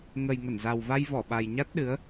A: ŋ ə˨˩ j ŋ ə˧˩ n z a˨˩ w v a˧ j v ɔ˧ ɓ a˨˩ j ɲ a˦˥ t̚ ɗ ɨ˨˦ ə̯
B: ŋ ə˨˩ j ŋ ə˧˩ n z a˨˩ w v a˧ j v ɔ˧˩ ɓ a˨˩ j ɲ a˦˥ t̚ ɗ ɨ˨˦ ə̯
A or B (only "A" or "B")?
B